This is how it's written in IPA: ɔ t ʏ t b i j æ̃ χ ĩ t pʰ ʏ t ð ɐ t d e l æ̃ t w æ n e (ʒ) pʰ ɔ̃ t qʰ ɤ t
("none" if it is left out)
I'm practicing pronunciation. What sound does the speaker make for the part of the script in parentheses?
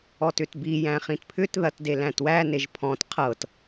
ʒ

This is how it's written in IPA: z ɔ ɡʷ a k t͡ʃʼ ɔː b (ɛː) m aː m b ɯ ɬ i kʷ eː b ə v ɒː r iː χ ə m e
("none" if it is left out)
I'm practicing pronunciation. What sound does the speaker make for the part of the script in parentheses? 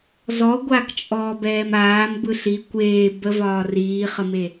ɛː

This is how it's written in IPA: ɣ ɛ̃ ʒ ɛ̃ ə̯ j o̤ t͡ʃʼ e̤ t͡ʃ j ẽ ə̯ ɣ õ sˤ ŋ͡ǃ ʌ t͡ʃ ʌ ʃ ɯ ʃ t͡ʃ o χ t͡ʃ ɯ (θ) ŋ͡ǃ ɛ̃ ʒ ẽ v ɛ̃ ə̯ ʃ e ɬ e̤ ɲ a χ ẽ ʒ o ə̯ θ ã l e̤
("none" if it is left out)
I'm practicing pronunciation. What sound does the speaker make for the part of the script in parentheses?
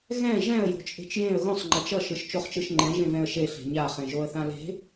ʃ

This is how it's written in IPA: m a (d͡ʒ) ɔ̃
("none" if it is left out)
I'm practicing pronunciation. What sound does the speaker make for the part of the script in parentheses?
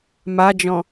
d͡ʒ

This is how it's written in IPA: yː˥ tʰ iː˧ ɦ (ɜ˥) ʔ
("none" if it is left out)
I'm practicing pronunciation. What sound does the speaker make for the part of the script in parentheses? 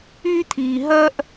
ɜ˥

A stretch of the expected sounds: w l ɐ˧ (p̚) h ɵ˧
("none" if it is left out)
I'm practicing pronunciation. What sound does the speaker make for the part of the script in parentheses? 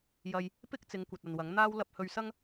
p̚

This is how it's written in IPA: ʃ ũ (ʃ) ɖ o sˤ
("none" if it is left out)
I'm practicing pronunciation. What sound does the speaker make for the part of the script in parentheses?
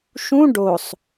none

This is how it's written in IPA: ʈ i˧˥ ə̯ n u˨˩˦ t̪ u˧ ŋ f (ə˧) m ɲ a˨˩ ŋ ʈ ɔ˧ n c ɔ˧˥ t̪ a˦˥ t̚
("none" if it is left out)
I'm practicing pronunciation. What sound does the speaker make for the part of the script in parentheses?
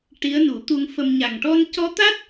ə˧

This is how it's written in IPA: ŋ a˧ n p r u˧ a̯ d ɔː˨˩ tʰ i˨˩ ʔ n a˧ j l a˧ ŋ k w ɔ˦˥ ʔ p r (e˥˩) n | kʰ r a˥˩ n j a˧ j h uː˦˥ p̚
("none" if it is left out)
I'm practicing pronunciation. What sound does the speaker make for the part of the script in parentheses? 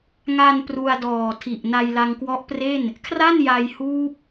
e˥˩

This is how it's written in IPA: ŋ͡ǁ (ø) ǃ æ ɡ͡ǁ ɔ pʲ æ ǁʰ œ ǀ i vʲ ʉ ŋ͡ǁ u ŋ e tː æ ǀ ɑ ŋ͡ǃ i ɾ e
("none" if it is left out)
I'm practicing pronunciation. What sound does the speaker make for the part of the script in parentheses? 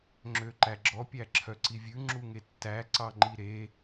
ø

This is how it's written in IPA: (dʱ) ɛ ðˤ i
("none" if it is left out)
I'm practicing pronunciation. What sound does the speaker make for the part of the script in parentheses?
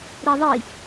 ɾ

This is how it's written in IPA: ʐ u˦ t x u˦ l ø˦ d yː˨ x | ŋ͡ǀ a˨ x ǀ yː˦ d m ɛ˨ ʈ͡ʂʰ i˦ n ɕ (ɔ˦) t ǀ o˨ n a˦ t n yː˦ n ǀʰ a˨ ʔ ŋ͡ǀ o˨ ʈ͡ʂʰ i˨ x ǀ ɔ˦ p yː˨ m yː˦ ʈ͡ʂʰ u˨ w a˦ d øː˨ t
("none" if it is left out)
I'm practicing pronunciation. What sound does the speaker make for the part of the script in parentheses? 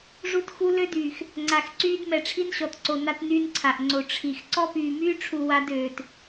ɔ˨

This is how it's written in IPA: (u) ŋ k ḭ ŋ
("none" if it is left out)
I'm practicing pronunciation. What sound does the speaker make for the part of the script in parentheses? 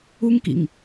u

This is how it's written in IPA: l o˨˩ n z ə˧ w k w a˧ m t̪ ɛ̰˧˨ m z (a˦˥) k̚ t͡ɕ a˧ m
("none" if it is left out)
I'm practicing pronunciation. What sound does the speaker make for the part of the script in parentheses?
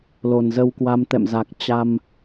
a˨˩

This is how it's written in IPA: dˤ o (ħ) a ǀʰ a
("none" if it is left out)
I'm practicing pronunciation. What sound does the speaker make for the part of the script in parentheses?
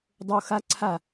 x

